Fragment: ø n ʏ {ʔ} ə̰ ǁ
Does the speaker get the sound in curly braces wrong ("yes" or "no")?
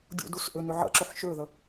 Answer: yes